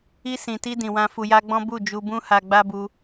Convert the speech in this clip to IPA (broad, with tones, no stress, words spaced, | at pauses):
i˧sĩ˨ti˧ dĩ˨wã˧ fu˧ja˦ɡ͡bɔ̃˦ bu˦˨ d͡ʒu˧bũ˦ha˧ ɡ͡ba˦bu˧